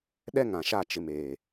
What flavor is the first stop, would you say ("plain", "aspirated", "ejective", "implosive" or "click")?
implosive